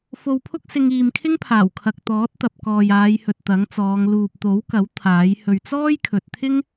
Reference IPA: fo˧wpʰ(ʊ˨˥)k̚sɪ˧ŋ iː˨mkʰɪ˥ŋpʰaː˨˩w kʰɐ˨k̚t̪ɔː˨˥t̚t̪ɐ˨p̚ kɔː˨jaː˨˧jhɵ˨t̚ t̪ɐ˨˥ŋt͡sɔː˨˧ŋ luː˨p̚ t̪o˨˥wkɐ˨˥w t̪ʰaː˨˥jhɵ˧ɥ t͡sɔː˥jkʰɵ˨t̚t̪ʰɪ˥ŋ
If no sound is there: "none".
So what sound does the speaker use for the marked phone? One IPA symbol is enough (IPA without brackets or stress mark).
ʊ˥